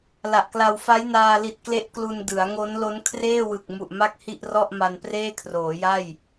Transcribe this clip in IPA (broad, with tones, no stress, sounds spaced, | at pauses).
l a˨˩ ʔ k l a˧ w f a˦˥ j n aː˧ l i˨˩ t̚ k l e˦˥ ʔ k l u˧ n d ɯ˩˦ a̯ ŋ o˦˥ n l o˦˥ n kʰ r eː˥˩ w ɯ˨˩ k̚ m u˨˩ ʔ m a˥˩ k̚ h i˥˩ ʔ r ɔ˥˩ ʔ m a˧ n p r eː˥˩ kʰ r oː˩˦ j a˥˩ j